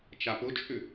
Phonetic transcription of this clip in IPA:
t͡ʃapʊt͡ʃʼʏ

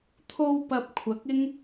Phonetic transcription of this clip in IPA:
t̪ʰo˧w pɐ˧p̚kʷʰɐ˨˥k̚ɪ˥ŋ

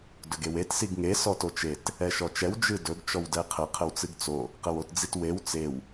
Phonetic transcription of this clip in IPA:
dɵɡewet siɡŋe sɔtot͡ʃet | ɛʃɔt͡ʃɛw d͡ʒɨdɵɡ t͡ʃɔwdɛqʰə qʰəwt͡sɨɡt͡so | qəwotd͡zitwew t͡sew

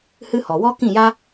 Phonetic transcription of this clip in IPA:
hɨ˦hɔ˨ wɔ˦ kĩ˦˨ja˦

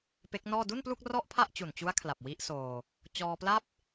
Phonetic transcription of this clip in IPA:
pe˦˥k̚nɔː˥˩ du˥˩nplu˥˩k̚ rɔ˥˩ʔpʰa˥˩ʔt͡ɕu˨˩nt͡ɕu˦˥a̯ kʰla˨˩p̚ wi˦˥ʔsoː˧ | t͡ɕɔː˧pla˥˩p̚

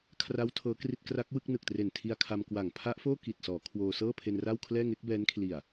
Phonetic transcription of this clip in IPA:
kʰra˦˥w tʰɤː˦˥kri˥˩t̚ kra˦˥k̚wɯ˥˩k̚nɯ˨˩k̚tre˨˩n tʰi˧a̯kʰa˧mkwa˨˩ŋ pʰa˦˥ʔfoː˥˩ ki˨˩t̚sɔː˩˦ kʰwoː˧ sɤː˥˩pʰe˧nra˥˩wkʰlɛː˥˩ ŋe˦˥k̚bɛː˦˥nkʰli˨˩a̯

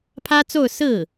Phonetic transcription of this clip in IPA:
pʰä˥t͡so˥˧ʊ̯ sɹ̩˥˩

